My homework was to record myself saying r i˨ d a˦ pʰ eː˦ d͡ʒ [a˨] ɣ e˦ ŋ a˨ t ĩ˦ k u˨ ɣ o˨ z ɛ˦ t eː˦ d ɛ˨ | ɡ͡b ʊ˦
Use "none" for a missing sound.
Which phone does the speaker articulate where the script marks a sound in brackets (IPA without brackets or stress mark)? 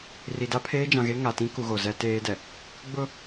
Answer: ã˨